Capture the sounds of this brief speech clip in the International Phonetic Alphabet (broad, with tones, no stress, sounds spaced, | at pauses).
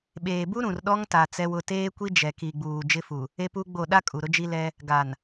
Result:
ɓ eː˨ b u˦ ɾ ũ˨ r ɗ ɔ˦ ŋ t a˨ t͡s ɛ˦ w ʊ˦ t eː˦ kʷ i˦ d͡ʒ ɛ˨ k i˨ ɡ͡b uː˨ d͡ʒ ɪ˦ f u˨ | e˦ p u˦ ɡ͡b o˦˨ ɗ a˦ kʼ u˨ ɾ ʊ˦ d͡ʒ i˦ l ɛ˦ | ɡ a˨ n